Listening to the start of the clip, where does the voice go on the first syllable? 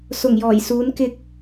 low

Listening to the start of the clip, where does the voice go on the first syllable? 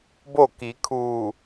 falling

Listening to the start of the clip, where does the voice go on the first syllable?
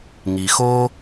low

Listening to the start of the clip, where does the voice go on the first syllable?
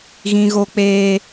high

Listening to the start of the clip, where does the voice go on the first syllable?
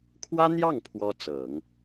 high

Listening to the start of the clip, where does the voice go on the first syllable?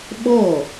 falling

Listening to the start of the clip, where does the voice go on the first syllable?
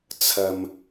low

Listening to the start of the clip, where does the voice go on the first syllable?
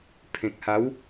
low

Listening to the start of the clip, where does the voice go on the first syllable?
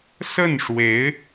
falling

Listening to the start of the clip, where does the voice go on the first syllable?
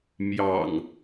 low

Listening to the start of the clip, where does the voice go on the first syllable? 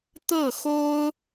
falling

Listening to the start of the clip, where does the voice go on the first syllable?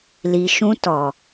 low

